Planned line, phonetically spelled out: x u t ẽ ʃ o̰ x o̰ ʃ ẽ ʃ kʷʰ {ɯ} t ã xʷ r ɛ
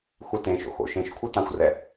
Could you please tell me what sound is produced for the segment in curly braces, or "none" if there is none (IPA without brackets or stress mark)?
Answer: ɯ